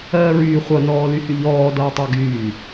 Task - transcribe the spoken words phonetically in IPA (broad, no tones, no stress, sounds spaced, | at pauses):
ɜː ɹ yː χʷ ʌ n ɔː l y h y ʎ ɔː d ʌː tˤ a ɡ yː